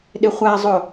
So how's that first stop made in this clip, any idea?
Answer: implosive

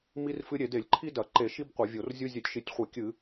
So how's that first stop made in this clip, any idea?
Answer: plain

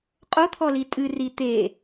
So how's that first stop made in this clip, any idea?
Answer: ejective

